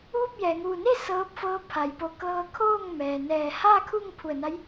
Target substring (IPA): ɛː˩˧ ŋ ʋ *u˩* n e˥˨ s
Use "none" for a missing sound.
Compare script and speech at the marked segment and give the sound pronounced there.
u˧˩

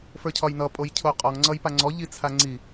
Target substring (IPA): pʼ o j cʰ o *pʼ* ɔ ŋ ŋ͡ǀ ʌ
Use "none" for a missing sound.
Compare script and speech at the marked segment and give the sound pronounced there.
qʼ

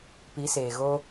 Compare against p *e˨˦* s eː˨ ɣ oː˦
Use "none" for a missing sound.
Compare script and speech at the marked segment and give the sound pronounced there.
i˨˦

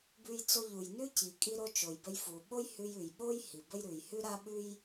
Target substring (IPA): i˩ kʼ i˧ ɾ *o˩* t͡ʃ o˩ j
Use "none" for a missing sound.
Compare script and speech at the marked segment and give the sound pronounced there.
o˧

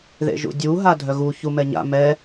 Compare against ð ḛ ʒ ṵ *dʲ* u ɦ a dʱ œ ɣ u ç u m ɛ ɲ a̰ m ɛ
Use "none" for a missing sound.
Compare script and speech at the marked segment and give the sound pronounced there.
dʲ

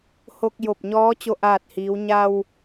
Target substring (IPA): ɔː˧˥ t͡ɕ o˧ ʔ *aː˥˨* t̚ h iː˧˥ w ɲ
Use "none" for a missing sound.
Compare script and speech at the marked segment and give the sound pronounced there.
aː˥˨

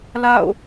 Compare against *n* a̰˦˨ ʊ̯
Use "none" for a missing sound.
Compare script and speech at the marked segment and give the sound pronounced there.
l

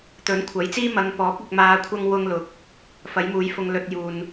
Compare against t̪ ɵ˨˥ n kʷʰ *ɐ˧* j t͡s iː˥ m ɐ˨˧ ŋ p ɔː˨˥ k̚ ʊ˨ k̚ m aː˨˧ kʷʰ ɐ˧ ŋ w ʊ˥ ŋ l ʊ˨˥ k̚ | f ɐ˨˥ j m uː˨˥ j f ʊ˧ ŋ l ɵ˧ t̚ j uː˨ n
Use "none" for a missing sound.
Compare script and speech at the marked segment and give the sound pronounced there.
ɐ˨˥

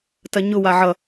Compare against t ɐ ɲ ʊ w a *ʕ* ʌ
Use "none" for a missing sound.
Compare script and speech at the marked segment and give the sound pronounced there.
ʕ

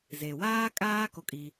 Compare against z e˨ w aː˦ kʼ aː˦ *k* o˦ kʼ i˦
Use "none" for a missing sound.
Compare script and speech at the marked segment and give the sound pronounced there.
k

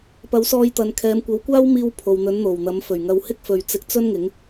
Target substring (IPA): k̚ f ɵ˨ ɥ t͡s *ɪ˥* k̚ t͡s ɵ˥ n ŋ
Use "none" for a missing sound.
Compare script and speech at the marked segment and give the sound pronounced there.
ɪ˧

